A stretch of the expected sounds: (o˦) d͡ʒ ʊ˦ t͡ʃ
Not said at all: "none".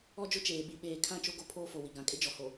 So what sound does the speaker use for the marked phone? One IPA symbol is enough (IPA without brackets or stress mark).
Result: ɔ˦